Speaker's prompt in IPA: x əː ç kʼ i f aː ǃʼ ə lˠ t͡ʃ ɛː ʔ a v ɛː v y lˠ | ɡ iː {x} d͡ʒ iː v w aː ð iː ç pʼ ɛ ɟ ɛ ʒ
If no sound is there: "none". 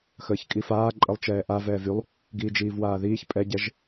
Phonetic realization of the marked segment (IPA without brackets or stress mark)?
none